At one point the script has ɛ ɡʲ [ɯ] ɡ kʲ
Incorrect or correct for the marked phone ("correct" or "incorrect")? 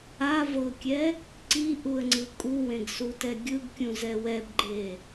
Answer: correct